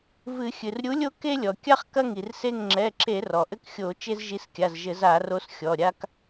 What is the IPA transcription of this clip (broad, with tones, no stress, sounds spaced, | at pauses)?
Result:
v ɨ˧˩˧ xʲ ɨ˩ r ɾʲ u˨˥ lʲ o˦ k e˦ lʲ ɔ˩ kʲ a˦ χ k ɐ˦ ŋ i˩ r s e˦˨ ŋ ŋ͡ǁ ɛ˩˧˩ ǁ e˧˩˧ r ɔ˩ ʔ ɘ˦ k xʲ o˧˩˧ t͡ʃ e˦ z ʒ i˨˥ s kʲ a˩˧˩ z ʒ ɘ˧˩˧ z a˧˩˧ r o˨˥ s xʲ ɔ˩˧˩ ɾʲ a˦ k